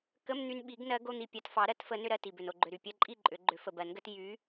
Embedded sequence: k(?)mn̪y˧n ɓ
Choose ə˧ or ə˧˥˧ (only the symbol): ə˧˥˧